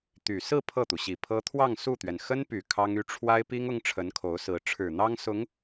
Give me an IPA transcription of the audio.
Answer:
t̪ y˨˩ s ɹ̩˥˧ pʰ ɤ˥˩ t̪ u˩ ɕ i˨˩ pʰ ɤ˥ t̪ʰ w ɑ˥˧ ŋ s u˥˩ t̪ ɥ ɛ˩ n x ə˥ n p y˨˩ kʰ ɑ˥ ŋ y˥ ʈ͡ʂʰ w a˥ ɪ̯ p i˥ ŋ ʊ˥ ŋ ʈ͡ʂʰ ə˧˥ n kʰ o˧˥ ʊ̯ s ɹ̩˧˥ ʈ͡ʂʰ ɻ̩˨˩ n̪ ɑ˥ ŋ s ʊ˧˥ ŋ

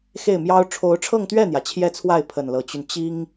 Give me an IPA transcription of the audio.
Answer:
x e˥˩ ɪ̯ m j ɑ˥ ʊ̯ ʈ͡ʂʰ o˧˥ ʊ̯ ʈ͡ʂʰ ɤ˥˧ ŋ t̪ ɥ ɛ˥˩ n̪ j ä˩ t͡ɕʰ j ɛ˥˧ t͡sʰ w a˥˩ ɪ̯ pʰ ə˨˩ n l ɤ˧˥ t͡ɕ y˧ n t͡ɕ i˥ ŋ

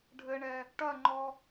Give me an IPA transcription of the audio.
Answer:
ɖʱ ɘ ɳ ɛ | ʈ ɐ ŋ͡ǃ ɔ

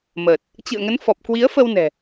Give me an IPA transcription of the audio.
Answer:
m əː˨˩ t̚ | t͡ɕ ɨ̰˧˨ ə̯ ŋ ə˨˦ n f ɔ˨˩ p̚ k w i˨˦ ə̯ f ə˧ w n ɛ̤˨˩

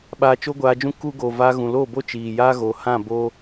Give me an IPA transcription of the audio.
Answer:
ɓ aː˧ t͡ʃ o˦ ɡʷ aː˧ d͡ʒ ũ˦ k u˦ ɡ o˨ v aː˧ ɣ ũ˨ l oː˦˨ b o˦ t͡ʃ iː˨ j aː˦ ɣ o˨ h ã˦˨ b oː˧

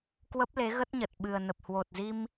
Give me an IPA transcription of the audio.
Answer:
k w ə˦˥ p̚ l e˨˦ ɣ ə˦˥ t̚ ɲ ə˨˩ t̚ ɓ ɨ˨˩ ə̯ n ə˨˩ p̚ h w o˨˩ t̚ z i˧ m

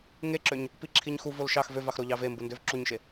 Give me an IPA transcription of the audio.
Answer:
ŋ e ǁ ø ɲ | p i ǁʰ i ɲ x u v o l ʃ ɑ x v ø v ɑ x ɾ o ʎ ɑ v e m b u n d ø v ǁ u ɲ ʃ e

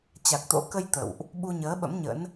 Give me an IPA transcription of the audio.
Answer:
t͡ɕ a˨˩ k̚ t̪ o̰˧˥ k ə˧ j t̪ ə̰˧˨ w ʔ | ɓ u˧ ɲ əː˨˦ ɓ ə̰˧˥ m ɲ ə̰˧˥ n

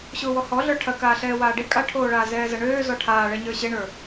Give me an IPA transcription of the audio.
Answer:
ɕ ʊː w ɔ h ɔ ɮ ə˞ ʈʰ ɐ k aː ɬ ɛː w aː ɖ e kʼ a ʈʰ oː ɭ aː z ɛː z ɐ ɳ øː z ɔ ʈʰ aː ɭ ɛ ɲ ə˞ ɕ e ɳ ə˞

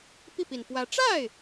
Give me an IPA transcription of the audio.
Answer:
p i˥˩ p i˨˩ n p w ä˧˥ ʈ͡ʂ a˥˩ ɪ̯

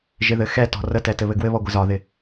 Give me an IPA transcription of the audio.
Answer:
ʒ ɪ ð ɘ x ɛ t ɔ̤ r ə t ɛ t ɘ β ɘ ɡ w ɘ β ɔ ɡʷ ɪ z ɒ ð ɪ

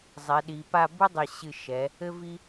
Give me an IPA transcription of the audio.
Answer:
zˤ ɛ˩˧ ɗ i˩˧ p a˥˧ b u˥ dˤ ɘ˧˩ ɕ ɨ˧˩ ʃ ɛ˩˧ | ɘ˧ v i˧

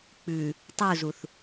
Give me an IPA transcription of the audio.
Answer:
k͡p ʉ | tˤ u z u θ

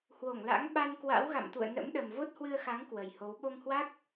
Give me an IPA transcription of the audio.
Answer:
h w o˧˩ ŋ l a̰˧˥ ŋ ɓ a˧ n k w a̰˧˥ w ɣ a̰˧˨ m t̪ ṵ˧˨ ə̯ n ə̰˧˥ m ɗ ə˨˩ m v o˦˥ t̚ h w ɨ˧ ə̯ x a˨˦ ŋ k w ə˨˩ j h o˨˦ w ɓ o˧ ŋ h w a˦˥ k̚

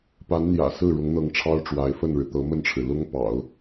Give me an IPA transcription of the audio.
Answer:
p a˧˥ n n̪ j ä̰˨˩ s ɹ̩˥˩ ɻ ʊ˧˥ ŋ n̪ ɤ˧˥ ŋ ʈ͡ʂʰ ɑ˥ ʊ̯ ʈ͡ʂ w a˧˥ ɪ̯ f ə˥˩ n ɻ ɻ̩˩ t̪ ɤ˧˥ m ə˥˩ n ʈ͡ʂʰ ɻ̩˩ l ʊ˥ ŋ p ɑ̰˨˩˦ ʊ̯

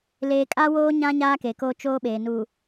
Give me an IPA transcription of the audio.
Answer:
l eː˨ kʼ a˦ w oː˦ ɲ ã˦ ɲ aː˦ k e˨ k oː˦ t͡ʃ oː˦ ɓ eː˨ n u˨

